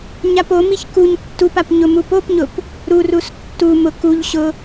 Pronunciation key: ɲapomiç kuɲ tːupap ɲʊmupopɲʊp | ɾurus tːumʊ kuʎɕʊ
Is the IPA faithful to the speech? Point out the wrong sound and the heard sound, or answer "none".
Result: none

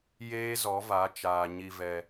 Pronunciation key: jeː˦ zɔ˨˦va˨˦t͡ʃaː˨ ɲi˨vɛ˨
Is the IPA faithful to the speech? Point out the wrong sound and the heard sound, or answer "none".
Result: none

